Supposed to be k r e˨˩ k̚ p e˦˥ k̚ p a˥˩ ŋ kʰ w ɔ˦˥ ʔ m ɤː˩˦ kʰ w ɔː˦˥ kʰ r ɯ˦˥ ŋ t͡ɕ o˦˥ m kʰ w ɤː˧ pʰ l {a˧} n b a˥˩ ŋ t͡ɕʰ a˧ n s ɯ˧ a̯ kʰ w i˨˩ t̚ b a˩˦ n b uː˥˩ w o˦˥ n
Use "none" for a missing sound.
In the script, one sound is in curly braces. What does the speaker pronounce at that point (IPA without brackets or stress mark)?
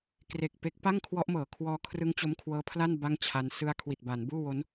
a˥˩